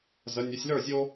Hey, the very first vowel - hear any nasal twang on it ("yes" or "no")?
no